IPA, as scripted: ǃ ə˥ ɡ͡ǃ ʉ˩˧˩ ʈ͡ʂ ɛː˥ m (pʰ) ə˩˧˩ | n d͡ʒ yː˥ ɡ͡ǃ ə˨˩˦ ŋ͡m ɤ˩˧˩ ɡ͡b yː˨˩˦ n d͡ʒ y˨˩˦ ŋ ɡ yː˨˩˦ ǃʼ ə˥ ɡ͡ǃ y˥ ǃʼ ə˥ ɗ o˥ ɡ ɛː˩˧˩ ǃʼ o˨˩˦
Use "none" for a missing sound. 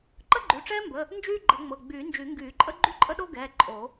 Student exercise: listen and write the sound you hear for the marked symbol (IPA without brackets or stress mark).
b